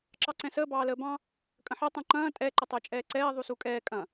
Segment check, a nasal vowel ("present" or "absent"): present